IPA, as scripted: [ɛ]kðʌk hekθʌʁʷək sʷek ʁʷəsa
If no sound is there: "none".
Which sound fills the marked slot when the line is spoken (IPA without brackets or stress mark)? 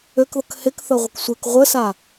ø